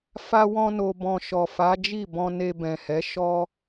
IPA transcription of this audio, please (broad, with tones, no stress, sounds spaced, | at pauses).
f a˦ w ɔ̃˦ n o˧ b ɔ̃˧ ʃ ɔ˨ f a˨˦ d͡ʒ i˦˨ b ɔ̃˧ n e˧ b ɛ̃˨ h ɛ˨˦ ʃ ɔ˦